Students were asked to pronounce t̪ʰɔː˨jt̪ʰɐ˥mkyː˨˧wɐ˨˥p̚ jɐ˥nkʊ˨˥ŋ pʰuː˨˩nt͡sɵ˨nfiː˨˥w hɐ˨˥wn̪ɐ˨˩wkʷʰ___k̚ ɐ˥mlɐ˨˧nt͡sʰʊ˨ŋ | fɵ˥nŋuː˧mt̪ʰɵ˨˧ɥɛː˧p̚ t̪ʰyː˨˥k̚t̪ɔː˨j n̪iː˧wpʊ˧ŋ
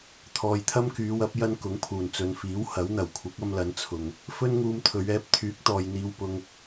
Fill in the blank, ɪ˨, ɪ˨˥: ɪ˨˥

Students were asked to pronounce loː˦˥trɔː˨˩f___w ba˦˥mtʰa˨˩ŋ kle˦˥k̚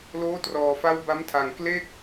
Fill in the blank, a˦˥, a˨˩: a˦˥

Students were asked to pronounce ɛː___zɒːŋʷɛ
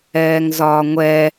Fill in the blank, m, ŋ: ŋ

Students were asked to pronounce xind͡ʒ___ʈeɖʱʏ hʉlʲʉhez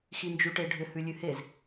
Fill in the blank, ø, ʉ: ʉ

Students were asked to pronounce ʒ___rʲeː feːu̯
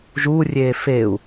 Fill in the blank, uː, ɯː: uː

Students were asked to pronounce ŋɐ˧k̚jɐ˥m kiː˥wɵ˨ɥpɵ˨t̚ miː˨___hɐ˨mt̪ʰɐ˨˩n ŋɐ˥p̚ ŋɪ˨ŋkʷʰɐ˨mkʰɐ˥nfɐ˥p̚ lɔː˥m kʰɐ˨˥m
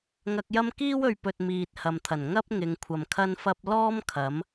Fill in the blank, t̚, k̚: t̚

